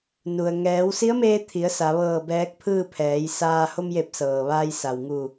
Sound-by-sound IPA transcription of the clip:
nu˩ə̯ ŋɛː˩˧w si˧˥ə̯meː˧ t̪ʰi˩˧ə̯ sa˩˧ʋɤː˧˩bɛː˧˥k̚ pʰɯː˥˨ pʰɛː˩˧jsaː˧ ho˧mje˧˩p̚ sɤː˩ʋaː˧j sa˩wŋu˧˩

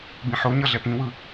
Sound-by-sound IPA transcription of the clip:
bĩħoɲʌ ɮɛpĩwɯ

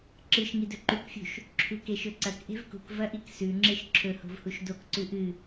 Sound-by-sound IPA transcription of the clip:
ǁɨʃ ŋidɵǃukfʲṳʃ | ǁʰʉkeʃɵǀɐk ʔe̤vkṳk vɐʔiksʉ ŋ͡ǁeʃǁʰɵho̤vhuʃ dokǀʉ ʔɨ

